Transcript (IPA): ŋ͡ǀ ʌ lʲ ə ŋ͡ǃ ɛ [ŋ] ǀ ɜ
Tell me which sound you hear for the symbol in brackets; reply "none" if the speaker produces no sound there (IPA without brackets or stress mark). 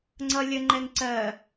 ŋ